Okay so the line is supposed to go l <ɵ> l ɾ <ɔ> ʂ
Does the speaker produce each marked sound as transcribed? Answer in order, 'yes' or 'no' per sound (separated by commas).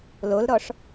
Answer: no, yes